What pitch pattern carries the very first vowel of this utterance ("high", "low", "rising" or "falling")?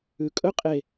low